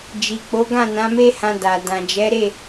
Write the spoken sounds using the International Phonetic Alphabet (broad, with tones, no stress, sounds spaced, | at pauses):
d͡ʒ i˨ k͡p o˨˦ ɡ ã˦˨ n ã˨˦ m e˦ h ã˧ d a˨ d ã˨ d͡ʒ ɛ˨˦ ɾ e˦˨